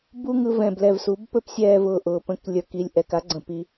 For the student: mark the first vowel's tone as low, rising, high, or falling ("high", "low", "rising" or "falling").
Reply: high